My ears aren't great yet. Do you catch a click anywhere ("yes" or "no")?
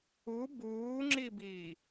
yes